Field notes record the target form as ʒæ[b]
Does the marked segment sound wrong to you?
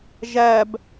no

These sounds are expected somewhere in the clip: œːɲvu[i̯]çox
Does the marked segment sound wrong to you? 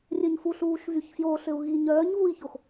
no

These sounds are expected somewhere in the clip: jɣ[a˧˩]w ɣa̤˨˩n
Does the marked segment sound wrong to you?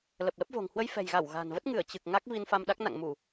no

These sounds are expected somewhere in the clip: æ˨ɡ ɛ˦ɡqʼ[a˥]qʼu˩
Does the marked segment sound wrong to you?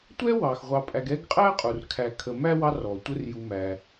yes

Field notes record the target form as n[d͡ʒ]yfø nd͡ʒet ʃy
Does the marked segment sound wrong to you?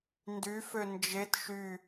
yes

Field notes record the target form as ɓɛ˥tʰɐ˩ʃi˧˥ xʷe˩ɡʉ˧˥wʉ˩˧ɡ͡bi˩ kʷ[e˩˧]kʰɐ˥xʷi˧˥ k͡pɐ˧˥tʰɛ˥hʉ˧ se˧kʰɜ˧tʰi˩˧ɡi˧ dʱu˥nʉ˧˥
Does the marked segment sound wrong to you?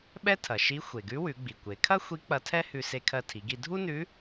no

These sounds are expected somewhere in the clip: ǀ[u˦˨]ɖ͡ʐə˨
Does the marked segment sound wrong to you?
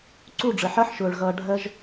no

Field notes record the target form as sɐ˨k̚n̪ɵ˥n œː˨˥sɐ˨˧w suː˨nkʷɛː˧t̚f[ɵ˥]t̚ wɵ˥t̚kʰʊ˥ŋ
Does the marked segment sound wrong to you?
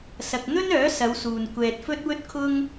no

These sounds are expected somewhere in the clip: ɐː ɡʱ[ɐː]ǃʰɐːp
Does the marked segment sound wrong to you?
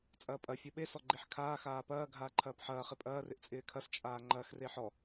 yes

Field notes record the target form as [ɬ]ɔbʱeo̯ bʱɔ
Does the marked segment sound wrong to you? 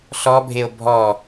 no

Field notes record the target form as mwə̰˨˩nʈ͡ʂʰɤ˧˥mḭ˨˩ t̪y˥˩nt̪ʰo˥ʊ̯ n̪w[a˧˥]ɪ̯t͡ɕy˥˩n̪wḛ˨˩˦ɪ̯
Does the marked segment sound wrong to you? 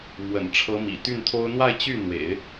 yes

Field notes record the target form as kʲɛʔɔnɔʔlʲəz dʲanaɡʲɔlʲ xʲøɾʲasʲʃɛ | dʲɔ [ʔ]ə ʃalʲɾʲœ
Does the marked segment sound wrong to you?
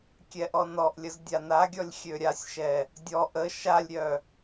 no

